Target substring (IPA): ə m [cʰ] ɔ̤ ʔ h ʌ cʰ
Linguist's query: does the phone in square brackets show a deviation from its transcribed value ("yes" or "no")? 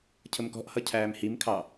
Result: yes